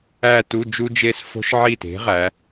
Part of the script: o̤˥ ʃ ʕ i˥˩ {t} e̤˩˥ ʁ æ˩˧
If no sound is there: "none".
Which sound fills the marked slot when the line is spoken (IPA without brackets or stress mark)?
t